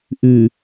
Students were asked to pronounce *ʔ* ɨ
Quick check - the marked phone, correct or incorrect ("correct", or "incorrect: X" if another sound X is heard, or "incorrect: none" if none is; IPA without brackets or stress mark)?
correct